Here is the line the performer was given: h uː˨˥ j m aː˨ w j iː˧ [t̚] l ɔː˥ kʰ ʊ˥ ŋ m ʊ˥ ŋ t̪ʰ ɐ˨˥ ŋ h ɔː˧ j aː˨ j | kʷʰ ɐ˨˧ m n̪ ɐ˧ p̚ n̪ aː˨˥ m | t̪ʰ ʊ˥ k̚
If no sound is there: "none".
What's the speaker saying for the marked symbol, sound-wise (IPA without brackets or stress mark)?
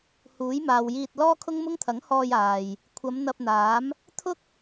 t̚